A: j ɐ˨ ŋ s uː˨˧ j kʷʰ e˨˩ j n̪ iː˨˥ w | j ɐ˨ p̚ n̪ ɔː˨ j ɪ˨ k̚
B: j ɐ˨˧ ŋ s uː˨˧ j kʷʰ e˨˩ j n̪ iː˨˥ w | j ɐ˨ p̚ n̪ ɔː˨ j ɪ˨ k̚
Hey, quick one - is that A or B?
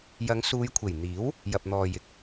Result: B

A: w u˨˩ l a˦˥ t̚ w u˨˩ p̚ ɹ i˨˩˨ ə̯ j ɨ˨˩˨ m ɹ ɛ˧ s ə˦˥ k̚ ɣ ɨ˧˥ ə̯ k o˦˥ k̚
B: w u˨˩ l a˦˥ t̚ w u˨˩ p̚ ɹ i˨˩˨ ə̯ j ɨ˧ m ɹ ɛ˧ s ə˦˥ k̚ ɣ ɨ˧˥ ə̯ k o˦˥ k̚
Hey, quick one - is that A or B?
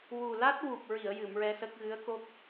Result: A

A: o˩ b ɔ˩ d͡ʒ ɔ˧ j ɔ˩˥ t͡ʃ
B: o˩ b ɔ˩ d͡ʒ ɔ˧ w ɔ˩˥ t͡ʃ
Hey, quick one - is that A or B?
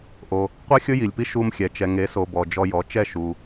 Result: A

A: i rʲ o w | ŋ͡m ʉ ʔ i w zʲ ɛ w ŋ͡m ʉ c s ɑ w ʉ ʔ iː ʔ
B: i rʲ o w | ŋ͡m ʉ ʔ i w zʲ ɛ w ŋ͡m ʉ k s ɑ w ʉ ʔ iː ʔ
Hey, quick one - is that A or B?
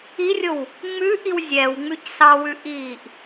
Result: A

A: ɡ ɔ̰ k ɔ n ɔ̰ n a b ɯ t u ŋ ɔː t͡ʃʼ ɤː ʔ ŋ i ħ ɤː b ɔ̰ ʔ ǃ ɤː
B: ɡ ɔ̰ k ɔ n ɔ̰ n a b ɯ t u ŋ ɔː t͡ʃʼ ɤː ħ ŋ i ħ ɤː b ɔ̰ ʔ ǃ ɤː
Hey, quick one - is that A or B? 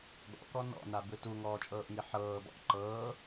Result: A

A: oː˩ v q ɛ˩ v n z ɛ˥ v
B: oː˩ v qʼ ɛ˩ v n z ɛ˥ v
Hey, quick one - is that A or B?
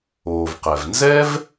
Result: A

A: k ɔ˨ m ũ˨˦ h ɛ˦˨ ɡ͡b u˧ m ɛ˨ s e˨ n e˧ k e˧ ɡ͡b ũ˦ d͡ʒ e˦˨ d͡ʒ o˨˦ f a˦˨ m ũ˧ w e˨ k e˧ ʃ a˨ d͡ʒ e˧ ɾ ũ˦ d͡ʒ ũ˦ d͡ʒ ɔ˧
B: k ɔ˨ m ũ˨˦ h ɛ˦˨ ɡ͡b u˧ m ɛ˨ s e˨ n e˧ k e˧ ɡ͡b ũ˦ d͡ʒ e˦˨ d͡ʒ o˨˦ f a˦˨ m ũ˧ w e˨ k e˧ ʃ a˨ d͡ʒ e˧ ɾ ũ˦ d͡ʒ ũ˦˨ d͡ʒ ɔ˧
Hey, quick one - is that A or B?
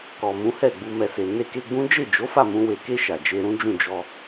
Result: B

